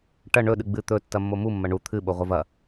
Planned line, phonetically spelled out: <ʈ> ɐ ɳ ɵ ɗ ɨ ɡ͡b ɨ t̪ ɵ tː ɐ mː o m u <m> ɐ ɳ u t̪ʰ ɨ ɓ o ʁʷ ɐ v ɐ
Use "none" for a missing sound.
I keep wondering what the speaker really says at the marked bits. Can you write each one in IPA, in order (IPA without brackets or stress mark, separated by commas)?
ʈ, mː